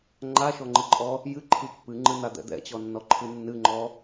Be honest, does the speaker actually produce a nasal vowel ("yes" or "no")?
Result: no